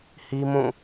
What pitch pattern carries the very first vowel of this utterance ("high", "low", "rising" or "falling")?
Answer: high